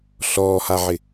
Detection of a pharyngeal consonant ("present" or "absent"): present